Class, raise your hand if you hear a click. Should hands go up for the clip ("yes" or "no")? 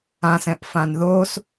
no